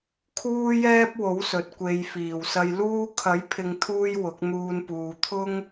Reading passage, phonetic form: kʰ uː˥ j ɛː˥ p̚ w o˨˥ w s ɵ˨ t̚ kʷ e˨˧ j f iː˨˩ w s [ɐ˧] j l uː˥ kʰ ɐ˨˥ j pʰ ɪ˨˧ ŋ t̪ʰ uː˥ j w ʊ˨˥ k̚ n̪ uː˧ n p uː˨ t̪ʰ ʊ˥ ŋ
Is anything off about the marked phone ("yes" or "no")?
no